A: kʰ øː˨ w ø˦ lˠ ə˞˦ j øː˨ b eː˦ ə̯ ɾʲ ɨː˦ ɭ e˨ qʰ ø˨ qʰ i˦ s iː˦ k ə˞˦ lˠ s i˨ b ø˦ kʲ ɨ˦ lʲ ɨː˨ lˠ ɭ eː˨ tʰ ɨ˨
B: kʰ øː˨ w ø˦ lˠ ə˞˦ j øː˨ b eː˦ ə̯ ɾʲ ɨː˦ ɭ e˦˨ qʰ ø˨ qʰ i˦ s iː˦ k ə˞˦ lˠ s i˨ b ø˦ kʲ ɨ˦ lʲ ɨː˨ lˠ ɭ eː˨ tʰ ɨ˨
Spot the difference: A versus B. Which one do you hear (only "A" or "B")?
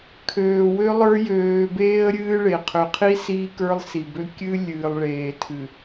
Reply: A